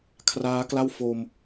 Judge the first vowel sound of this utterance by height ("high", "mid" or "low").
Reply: low